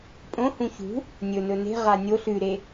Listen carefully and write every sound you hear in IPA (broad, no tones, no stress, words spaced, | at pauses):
pʼõhũ çṳ | nʲɵnɵ ne̤ʁa nʲo ɬʉɾe